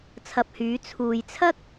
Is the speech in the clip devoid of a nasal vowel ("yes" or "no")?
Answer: yes